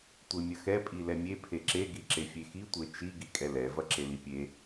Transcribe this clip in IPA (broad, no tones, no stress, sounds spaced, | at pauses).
tʷ e mʲ ɐ x ɛ pʼ i l ɛ mʲ e pʰ e ǁ e ɡ i ǁ e fʲ e x i tʷ e t͡ʃ i ɡ i kʼ ɛ l ɛ v ɐ ǁ e l i pʲ e